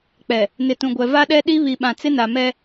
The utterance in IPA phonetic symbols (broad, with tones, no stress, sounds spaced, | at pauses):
k͡p ɛ˨ | n ɪ˨ t ũ˨ ɡʷ ɛ˨ v a˦ ɗ ɛ˦ ɗ i˦ β i˨ ɓ ã˨ t͡s ɪ˦ n a˨ m ɛ˦